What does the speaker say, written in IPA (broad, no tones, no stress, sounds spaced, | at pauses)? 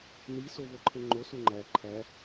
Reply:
n i s o v o ǃʰ e ŋ͡ǃ o s u ŋ͡ǃ æ ǃʰ æ